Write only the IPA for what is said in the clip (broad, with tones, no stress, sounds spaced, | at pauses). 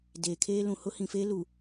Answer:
d eː˨ kʰ eː˦ l ũ˨ h ʊ˦ h ĩ˨ f eː˦ l u˨